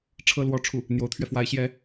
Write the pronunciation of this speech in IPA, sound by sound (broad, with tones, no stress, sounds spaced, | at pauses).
ʈ͡ʂʰ ɤ˥ l w ɔ˥˧ ʈ͡ʂʰ u˥˩ | n̪ j o˧˥ ʊ̯ t̪ʰ ɥ ɛ˧ f w a˧˥ ɪ̯ ɕ j ɛ˧˥